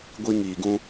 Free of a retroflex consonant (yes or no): yes